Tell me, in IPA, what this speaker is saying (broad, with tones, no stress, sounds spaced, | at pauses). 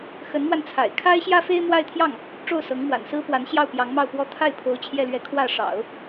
x ə˧˥ n m w a˧ n t͡sʰ a̰˨˩ ɪ̯ kʰ a˥ ɪ̯ ɕ j ä˥ f e˥ ɪ̯ m w a˥˧ ɪ̯ t̪ʰ j ɑ˥˩ ŋ | ʈ͡ʂ o˥˩ ʊ̯ s ɤ˧˥ ŋ m w a̰˨˩ n s ɹ̩˥ p w a˧˥ n ɕ j ɑ˥˩ ʊ̯ p j ɑ˧˥ ŋ m ɑ˥˧ ʊ̯ p w ɔ˥˧ t̪ʰ a˥˩ ɪ̯ pʰ o˧˥ ʊ̯ t͡ɕʰ j ɛ˥˧ l ɥ ɛ˥˧ kʰ w ä˥˩ ʂ ɑ̰˨˩˦ ʊ̯